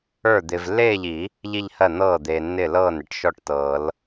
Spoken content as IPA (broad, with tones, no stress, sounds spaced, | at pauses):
ə˞˥˩ d̪ ɪː˨ v lː eː˥˧ ʎ i˨˩˦ | ʎ i˥˧ ʎ h ɜ˥˩ n̪ ɤː˥˩ d̪ eː˨ nː ɪː˥˩ l ɤː˥˩ n ɪ˧˥ ʈ ʃ ɔ˥˩ ʈ t ɤː˨˩˦ l